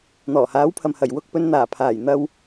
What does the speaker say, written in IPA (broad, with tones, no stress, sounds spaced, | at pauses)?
n̪ ɔː˨˩ h aː˨˥ w pʰ ɐ˨ m h ɐ˨˩ j w ʊ˧ k̚ p ɵ˨˧ n n̪ aː˨˩ pʰ aː˨˩ j n̪ ɐ˧ w